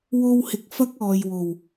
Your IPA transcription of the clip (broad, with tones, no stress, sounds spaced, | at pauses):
w o˧ w h ɪ˨ k̚ f ɐ˥ k̚ ɔː˨ j w o˨˩ w